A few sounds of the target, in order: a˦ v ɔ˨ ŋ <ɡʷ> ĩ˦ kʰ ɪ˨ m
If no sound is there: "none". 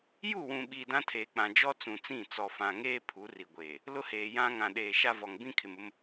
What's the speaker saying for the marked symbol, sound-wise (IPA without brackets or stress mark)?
b